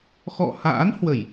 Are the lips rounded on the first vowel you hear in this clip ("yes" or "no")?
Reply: yes